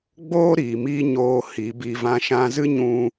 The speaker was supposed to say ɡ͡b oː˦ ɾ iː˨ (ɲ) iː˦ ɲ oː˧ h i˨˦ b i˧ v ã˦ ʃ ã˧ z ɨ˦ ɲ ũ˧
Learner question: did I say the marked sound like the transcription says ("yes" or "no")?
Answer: no